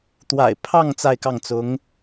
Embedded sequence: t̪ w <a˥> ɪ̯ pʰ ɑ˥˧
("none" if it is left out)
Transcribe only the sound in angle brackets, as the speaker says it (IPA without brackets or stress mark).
a̰˨˩